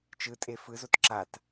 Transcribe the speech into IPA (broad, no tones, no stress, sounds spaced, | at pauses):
t͡ʃ ɯ tʼ e f ɯ z o t ǁ a t